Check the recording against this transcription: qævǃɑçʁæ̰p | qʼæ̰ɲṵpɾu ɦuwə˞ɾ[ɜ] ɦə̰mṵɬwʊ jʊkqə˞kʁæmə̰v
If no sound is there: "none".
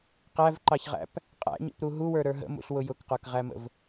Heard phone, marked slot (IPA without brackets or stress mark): ə˞